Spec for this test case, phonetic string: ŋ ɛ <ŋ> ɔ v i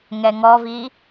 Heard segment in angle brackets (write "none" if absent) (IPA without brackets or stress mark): ŋ